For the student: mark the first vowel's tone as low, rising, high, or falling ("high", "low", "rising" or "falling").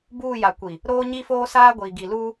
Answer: falling